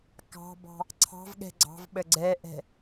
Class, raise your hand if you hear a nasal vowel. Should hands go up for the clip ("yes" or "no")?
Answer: no